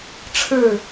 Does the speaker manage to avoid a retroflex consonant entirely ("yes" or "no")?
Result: no